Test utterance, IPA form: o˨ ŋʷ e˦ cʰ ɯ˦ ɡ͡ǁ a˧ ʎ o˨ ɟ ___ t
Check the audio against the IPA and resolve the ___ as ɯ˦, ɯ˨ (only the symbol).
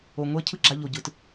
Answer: ɯ˨